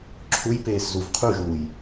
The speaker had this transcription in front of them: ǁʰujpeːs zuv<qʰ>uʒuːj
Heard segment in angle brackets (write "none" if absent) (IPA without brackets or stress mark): qʰ